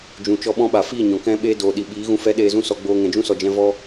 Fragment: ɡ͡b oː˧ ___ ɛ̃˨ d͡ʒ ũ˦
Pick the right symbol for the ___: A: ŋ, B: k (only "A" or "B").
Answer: A